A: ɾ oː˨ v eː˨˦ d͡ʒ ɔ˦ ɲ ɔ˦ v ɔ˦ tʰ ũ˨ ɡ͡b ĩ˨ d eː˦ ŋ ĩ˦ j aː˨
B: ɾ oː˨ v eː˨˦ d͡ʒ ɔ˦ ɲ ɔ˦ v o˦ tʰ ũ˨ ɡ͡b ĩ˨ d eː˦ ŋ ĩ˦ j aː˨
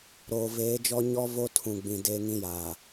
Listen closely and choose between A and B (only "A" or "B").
B